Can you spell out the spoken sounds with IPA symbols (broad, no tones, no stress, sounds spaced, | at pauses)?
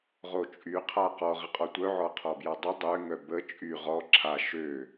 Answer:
ʁ o t͡ʃʼ y qʰ a q ɔ ʁ ə qʼ ɔ tʷ œ ʕ ɔ qʰ ɔ b j a dˤ ə dˤ ø ŋ œ b ə t͡ʃʼ y ʁ ɔ ǁʰ a ʃ ø